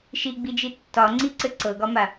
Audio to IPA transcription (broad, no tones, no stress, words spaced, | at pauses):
ʃiɡ͡bid͡ʒi tːɒŋ͡ǀiǀɘ ǀɤɡɒma